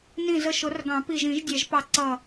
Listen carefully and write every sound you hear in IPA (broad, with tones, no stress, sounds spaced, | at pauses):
n ĩ˧˩ z ə˧˩ ʃ ʊ˨˩˦ r ɡ ɑ̃˨˩˦ p i˧˩ ʒ ĩ˨˩˦ ʒ dʲ ɛ˨˩˦ ʒ p ɑ˧˩ ǀ ʌ˧˩